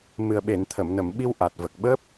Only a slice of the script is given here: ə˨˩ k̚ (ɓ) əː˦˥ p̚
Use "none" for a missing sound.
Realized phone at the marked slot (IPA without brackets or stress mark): ɓ